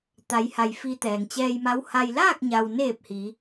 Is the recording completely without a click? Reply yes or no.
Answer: yes